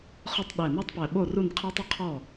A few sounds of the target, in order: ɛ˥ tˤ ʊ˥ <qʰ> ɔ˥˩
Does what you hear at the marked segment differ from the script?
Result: no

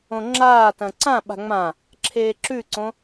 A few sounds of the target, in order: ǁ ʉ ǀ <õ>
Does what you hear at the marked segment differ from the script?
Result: no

